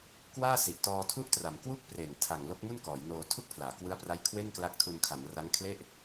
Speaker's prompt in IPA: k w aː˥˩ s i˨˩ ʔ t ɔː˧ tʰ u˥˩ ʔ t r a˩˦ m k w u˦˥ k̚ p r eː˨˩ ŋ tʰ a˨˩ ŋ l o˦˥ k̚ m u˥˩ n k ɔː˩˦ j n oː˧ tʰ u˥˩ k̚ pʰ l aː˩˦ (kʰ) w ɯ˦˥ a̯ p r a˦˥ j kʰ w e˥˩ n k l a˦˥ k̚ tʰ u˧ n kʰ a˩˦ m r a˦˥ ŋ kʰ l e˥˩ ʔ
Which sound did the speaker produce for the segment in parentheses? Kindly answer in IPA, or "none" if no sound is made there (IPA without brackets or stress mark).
k